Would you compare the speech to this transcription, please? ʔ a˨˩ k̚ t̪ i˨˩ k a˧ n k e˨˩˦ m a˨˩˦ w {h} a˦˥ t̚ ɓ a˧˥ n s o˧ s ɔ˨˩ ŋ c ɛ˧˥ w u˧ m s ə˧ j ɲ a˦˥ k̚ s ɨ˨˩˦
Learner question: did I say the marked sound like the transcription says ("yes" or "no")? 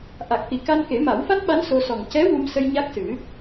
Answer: no